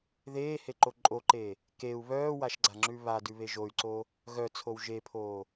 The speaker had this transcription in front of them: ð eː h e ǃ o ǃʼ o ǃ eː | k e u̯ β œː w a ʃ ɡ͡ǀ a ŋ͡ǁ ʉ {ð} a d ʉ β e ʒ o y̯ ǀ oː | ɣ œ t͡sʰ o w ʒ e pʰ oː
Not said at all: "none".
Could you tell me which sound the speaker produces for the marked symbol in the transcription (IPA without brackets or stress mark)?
β